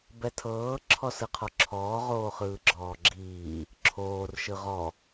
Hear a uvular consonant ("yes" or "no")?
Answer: yes